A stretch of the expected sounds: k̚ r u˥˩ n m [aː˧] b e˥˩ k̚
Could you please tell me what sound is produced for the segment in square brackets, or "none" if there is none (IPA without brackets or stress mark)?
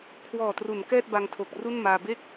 aː˧